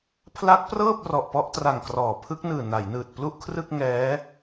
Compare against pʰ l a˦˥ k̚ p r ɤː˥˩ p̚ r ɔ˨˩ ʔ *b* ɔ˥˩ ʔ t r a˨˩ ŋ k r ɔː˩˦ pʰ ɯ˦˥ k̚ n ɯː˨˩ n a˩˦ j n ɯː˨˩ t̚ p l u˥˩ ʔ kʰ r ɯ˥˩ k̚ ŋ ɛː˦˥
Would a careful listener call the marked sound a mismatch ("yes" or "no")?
yes